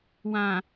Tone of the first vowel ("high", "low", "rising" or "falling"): low